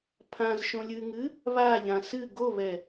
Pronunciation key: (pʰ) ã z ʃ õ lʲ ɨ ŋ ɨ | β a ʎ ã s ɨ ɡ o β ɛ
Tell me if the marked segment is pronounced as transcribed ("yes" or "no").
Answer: yes